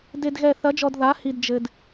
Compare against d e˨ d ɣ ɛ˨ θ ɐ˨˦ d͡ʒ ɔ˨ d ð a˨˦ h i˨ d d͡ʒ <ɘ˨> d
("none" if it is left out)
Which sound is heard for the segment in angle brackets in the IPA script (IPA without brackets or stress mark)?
ɘ˨